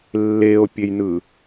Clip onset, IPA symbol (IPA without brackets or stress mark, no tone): lː